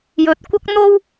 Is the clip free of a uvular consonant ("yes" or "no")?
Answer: yes